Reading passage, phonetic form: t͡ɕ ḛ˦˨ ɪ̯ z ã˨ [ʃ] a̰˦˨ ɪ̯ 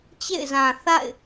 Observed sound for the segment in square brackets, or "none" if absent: θ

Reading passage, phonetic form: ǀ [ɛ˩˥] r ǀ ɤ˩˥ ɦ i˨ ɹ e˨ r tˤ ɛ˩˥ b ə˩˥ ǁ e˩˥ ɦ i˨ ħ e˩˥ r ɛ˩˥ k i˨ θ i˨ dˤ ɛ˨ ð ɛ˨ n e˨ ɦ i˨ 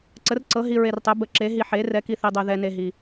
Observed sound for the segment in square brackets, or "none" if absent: ə˩˥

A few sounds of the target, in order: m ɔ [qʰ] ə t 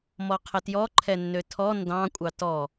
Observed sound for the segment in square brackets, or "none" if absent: qʰ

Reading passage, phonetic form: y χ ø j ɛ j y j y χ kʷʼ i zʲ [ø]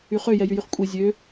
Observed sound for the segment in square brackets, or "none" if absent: ø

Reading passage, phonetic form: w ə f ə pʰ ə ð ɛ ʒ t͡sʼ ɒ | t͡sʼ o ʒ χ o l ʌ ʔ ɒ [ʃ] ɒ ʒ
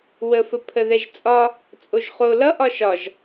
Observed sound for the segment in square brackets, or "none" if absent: ʃ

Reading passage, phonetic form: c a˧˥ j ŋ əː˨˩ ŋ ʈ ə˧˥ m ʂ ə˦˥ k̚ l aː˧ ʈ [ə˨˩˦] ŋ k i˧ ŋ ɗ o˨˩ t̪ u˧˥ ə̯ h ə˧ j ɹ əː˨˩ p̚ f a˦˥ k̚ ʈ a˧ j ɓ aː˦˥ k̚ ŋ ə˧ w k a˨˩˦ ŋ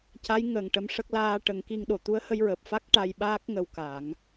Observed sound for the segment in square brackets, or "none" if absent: ə˨˩˦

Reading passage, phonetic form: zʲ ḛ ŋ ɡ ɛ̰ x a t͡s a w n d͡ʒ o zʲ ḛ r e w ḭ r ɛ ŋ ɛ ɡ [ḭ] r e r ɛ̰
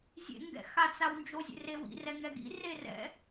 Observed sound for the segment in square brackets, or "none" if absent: ḭ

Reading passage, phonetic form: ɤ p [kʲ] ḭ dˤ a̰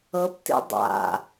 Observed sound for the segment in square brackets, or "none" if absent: t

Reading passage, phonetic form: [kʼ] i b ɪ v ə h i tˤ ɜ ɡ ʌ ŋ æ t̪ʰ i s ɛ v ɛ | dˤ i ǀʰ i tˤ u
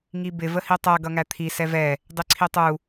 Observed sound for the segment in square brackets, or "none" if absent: ŋ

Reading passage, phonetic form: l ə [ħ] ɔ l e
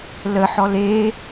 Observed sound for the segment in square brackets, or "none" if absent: ħ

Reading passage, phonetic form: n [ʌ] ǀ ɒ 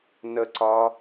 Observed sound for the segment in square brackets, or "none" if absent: ə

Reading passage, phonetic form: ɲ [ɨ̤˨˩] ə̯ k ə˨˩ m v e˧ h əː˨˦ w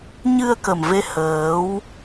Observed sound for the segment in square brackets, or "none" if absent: ɨ˧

